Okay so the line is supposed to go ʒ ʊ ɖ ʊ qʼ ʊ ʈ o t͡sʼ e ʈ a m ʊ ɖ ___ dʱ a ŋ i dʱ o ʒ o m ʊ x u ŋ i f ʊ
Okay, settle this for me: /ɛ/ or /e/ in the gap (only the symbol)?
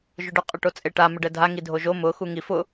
ɛ